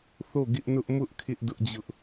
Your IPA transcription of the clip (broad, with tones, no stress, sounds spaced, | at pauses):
θ o˦˨ ɡ ɪ˦ ʔ n ʊ˦ ʔ m ʊ˦ ʔ kʰ ɪ˦ ʔ d ʊ˦ ʔ d͡ʑ ʊ˦ ʔ